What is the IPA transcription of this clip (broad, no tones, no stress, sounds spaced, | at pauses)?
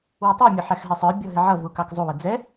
w ʌ tˤ u mʲ ʊ ħ æ x ɦ ɪ sˤ ə˞ bʲ ɔ ɦ ɪ ʕ ʌ v u k ɑ k zˤ u w ə d͡z ɛ